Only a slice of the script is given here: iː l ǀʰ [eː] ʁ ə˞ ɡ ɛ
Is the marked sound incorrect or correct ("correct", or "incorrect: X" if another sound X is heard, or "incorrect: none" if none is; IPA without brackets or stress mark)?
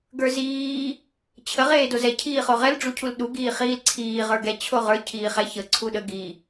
incorrect: iː